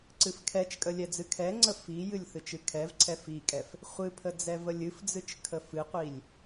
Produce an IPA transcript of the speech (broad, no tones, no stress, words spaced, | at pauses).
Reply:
ǀɨfkʰɛt͡ʃkʼə lʲɛd͡zɨkʰɛŋ͡ǀə fijɨlʲ θɨt͡ʃɨkʰɛvǀʰɛ fikʼɛf | χʷɨpʰə d͡zɛvəlʲɨfd͡zɨt͡ʃ kʰəfɨqʷilʲ